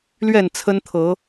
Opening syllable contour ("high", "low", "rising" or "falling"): falling